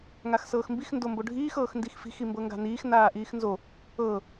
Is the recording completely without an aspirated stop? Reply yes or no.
yes